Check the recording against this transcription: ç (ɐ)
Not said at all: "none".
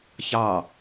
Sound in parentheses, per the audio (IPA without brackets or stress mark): ɑ